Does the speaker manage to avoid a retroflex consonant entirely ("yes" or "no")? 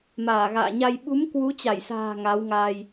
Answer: yes